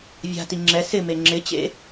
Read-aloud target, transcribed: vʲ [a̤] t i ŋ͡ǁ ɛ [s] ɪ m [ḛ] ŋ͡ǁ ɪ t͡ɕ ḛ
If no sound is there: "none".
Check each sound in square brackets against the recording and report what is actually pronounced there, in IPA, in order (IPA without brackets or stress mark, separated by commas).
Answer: a̤, s, e